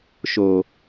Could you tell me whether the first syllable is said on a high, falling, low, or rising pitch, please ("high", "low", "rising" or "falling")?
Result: low